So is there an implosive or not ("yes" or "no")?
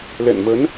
no